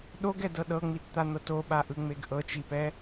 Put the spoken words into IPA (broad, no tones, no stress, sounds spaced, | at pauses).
ɗ o ɡ ɛ d ɤ ɗ ɤ ŋ͡m i t t̪ a n̪ ɤ t o ɓ a ʔ ɯ ŋ͡m e ɡ ʔ ɤ t͡ʃ i p ɛ